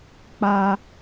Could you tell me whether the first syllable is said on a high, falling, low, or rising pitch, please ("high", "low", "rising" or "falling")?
high